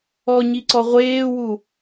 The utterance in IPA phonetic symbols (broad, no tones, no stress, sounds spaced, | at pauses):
ɔ ɲ i ǀ ɔ ʁʷ eː w u